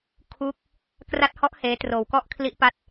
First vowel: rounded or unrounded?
rounded